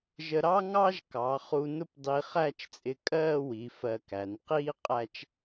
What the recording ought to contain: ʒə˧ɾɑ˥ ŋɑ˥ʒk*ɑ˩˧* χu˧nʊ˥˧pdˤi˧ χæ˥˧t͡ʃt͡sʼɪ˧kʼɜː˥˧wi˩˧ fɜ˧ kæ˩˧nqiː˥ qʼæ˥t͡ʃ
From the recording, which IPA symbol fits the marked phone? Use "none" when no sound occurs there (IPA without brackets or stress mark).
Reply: ɑ˩˧